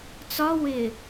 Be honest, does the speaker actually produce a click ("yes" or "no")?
no